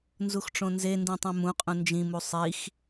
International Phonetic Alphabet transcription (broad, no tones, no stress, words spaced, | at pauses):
nzuxʈ͡ʂõnzendĩ tˤũmũqʼũ nd͡ʒĩmu sˤix